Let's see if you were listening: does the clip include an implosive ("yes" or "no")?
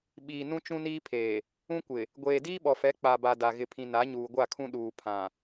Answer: yes